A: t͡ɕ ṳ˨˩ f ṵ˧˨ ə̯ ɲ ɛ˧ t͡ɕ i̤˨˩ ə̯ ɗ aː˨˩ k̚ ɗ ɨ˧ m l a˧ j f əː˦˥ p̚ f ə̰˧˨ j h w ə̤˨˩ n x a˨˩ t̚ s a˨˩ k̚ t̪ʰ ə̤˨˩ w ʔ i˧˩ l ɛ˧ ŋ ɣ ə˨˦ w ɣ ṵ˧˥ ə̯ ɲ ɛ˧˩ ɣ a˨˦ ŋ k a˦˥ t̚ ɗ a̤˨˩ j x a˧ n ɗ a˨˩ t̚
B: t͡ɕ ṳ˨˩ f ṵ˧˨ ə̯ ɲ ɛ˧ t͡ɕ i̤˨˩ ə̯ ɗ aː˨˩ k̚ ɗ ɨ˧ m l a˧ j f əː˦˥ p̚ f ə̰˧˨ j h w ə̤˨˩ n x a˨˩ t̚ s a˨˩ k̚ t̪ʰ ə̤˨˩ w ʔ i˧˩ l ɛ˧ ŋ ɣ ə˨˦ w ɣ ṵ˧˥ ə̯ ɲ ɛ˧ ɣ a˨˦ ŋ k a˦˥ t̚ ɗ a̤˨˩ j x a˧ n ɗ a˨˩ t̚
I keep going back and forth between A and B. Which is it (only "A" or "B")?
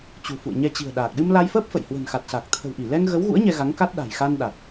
B